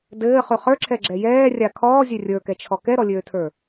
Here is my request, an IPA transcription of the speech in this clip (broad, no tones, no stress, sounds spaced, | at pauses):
d ɘː χ ʉ χ ə˞ ǁʰ ɛ ɡ͡ǁ ɛ j ɛː rʲ a kʰ ɔː zʲ ø rʲ ə˞ k ɛ t͡ʃʰ ɔ k ɛ ɾ ɔ lʲ øː tʰ ə˞